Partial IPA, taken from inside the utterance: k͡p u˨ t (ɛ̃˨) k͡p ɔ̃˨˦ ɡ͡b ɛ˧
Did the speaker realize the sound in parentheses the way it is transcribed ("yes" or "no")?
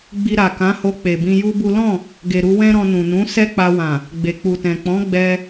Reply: yes